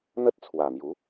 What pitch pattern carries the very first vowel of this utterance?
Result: high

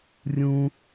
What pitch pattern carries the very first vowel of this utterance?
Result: high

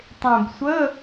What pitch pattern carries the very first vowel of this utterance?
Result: low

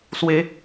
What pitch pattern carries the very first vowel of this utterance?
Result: high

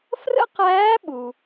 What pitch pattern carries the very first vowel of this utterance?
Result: high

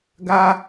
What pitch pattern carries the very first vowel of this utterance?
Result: high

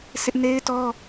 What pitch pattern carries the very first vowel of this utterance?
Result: high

